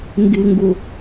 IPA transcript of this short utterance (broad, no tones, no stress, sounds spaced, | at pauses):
ŋ ɡ i ŋ ɡ u